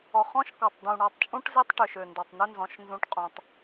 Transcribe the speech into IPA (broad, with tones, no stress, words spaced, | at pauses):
ɔ˨ χɔ̃˦ʃkɔ˨tˤ d̪ũ˨ ɳɔ˨tˤt͡ʃʼũ˦ʈ ze˦tˤʈø˨ʃø˨ ndɔ˨tˤnø˦nzɔ̃˨˦ʃ nzũ˦ʈ qʼũ˨tˤ